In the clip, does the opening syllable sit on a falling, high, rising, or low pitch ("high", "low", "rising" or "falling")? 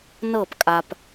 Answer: falling